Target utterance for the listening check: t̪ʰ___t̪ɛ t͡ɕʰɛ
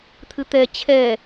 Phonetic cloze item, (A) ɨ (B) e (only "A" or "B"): A